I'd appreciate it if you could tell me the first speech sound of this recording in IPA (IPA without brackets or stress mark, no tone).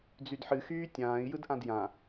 d͡z